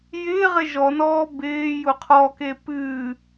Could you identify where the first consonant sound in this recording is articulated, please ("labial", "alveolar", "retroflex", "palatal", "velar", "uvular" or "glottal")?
palatal